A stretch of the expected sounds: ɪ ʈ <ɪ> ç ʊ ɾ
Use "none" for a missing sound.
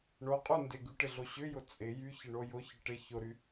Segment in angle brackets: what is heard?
ɪ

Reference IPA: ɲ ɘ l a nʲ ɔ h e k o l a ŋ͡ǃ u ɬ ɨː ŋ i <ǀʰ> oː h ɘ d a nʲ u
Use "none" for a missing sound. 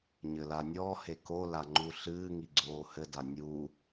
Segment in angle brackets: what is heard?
ɡ͡ǀ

